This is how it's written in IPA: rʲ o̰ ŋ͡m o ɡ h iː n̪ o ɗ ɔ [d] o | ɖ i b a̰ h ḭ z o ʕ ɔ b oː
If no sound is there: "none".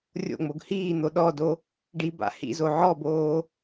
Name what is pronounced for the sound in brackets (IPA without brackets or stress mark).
d